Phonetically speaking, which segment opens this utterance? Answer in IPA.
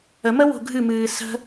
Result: ə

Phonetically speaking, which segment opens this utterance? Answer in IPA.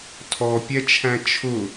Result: tʰ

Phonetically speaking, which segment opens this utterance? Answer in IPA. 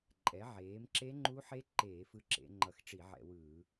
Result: ǃʼ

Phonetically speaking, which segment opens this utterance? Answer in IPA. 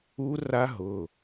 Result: u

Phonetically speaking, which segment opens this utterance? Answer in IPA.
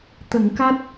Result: t̪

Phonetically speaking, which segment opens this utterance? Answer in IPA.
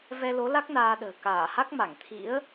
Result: v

